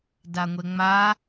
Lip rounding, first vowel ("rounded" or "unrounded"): unrounded